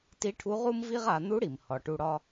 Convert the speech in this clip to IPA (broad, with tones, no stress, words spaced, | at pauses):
ti˧˥ʈʰu˧˥ ʁu˥mvi˥ʁ a˩˧n̪u˧˥ɽi˩m hɒ˩˧ʈu˧ ɽɒ˧